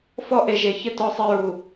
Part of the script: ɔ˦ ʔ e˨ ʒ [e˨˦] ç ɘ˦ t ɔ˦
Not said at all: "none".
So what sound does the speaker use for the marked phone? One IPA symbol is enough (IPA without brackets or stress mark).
e˨